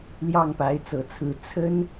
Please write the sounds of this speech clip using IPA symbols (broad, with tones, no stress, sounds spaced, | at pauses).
l j ɑ˥˩ ŋ p a˧˥ ɪ̯ t͡s ɤ˨˩ t͡sʰ ɹ̩˧˥ t͡sʰ ə˥ n